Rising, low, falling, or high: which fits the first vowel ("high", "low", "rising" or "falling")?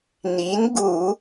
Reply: rising